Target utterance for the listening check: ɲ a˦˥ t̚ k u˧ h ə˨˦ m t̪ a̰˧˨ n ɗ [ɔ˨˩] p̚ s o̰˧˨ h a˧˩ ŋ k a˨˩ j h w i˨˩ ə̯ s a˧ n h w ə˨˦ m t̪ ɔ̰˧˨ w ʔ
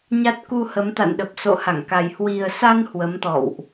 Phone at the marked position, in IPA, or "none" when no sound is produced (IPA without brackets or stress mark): ə˨˩